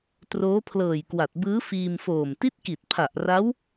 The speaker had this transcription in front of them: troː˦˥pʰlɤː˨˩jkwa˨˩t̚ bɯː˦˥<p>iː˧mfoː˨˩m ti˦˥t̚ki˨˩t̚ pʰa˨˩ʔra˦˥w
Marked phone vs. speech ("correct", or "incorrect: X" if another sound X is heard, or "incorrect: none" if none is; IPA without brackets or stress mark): incorrect: f